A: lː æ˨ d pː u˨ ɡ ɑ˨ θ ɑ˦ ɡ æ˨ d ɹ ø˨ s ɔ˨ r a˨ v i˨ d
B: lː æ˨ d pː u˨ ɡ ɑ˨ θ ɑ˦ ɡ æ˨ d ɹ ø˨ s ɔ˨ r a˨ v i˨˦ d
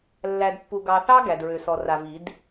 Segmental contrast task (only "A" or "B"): B